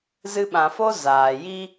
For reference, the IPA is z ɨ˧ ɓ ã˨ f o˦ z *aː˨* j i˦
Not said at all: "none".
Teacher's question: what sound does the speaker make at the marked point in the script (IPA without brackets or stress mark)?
aː˨